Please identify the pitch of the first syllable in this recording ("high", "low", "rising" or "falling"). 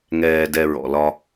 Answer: low